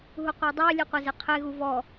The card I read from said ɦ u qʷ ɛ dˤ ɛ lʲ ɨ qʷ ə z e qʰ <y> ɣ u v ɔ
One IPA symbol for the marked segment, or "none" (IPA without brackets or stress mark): e